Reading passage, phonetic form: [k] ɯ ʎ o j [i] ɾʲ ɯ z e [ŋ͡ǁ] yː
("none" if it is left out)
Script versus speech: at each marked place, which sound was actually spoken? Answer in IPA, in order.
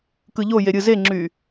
k, e, ŋ͡ǁ

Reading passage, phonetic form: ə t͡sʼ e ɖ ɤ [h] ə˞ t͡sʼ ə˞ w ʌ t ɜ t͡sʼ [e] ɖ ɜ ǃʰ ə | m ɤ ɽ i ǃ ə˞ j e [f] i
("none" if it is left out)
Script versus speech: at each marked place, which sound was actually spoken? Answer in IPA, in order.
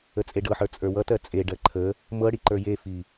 ħ, e, f

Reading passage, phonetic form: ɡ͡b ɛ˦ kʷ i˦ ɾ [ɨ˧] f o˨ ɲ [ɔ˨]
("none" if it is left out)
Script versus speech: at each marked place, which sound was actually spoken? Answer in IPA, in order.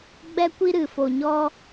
ɨ˨, ɔ˦

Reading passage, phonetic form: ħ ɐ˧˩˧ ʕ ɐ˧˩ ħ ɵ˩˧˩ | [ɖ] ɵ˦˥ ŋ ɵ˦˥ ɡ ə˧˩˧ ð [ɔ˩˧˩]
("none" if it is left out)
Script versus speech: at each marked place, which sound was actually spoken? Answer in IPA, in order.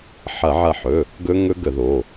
ɡ, o˩˧˩

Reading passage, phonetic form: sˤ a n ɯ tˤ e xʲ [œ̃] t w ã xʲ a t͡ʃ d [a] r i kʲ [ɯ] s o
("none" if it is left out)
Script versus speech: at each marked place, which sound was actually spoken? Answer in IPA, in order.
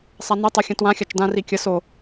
ə̃, ã, ə

